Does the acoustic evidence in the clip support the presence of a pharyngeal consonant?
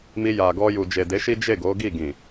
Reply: no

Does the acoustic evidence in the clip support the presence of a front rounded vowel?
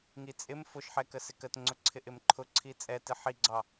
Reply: no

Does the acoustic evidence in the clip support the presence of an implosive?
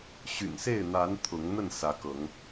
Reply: no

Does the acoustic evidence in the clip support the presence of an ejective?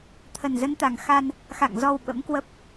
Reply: no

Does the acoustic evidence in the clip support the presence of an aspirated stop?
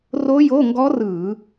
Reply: no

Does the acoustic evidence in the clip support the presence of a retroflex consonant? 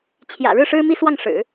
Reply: yes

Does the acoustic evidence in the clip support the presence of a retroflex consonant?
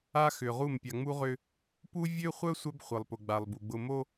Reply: no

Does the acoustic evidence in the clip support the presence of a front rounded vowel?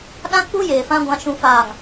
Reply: no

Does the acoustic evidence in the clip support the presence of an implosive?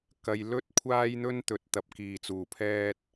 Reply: no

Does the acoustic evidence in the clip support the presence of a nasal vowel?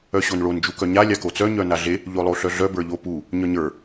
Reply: no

